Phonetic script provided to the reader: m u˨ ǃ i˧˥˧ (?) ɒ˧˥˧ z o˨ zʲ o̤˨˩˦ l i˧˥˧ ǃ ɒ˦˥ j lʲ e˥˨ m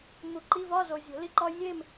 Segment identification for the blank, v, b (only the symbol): v